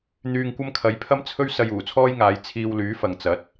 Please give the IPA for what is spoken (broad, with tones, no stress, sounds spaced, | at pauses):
n̪ yː˧ ŋ kʷ ɐ˥ m kʰ ɐ˨˧ j pʰ ɐ˥ m t͡sʰ ɵ˥ ɥ s ɐ˧ j uː˨˩ t͡sʰ ɔː˥ j ŋ aː˨˧ j t͡sʰ iː˧ w l yː˨˥ f ɐ˨ ŋ t͡s ɐ˨˥ t̚